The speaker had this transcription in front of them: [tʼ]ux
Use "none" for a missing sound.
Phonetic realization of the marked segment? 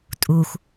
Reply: tʼ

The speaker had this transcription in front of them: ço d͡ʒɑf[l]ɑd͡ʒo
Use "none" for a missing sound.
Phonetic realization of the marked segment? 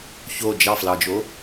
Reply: l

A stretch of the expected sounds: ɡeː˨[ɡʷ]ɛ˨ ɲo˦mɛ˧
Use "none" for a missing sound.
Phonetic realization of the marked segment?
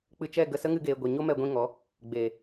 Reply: ɡʷ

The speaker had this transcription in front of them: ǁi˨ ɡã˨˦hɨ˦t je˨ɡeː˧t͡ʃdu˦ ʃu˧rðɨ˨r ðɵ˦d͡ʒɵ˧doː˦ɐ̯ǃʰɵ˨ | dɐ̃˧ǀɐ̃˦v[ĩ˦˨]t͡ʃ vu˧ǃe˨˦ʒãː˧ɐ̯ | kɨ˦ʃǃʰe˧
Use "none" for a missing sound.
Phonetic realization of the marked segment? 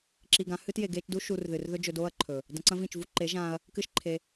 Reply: ĩ˦˨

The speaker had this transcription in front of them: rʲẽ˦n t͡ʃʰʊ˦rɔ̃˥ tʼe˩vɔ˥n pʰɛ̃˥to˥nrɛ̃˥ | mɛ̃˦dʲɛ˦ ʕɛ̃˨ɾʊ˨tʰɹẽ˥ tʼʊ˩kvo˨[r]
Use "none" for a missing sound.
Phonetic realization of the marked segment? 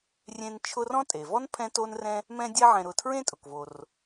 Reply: r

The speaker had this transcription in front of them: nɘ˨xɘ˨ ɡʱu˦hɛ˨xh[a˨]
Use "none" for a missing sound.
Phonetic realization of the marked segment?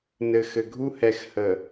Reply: ə˨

